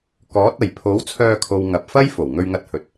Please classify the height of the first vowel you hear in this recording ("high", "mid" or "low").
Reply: mid